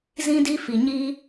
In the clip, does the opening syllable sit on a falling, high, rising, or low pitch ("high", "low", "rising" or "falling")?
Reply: high